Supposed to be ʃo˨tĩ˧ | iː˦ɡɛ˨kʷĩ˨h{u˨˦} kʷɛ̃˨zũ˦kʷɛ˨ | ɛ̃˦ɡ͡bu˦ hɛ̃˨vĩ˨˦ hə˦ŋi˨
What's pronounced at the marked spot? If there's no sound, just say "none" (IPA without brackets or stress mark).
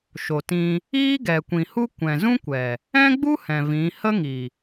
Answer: u˦